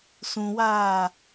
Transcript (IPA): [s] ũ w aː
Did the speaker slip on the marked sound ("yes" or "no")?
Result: no